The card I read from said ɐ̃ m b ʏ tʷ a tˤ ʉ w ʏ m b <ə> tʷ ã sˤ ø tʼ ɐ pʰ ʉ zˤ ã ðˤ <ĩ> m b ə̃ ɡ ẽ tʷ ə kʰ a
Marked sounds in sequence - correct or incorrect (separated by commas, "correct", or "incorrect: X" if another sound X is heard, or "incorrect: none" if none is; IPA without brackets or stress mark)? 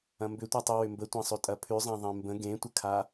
correct, incorrect: ẽ